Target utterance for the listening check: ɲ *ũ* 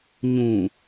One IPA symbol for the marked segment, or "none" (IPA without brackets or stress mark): ũ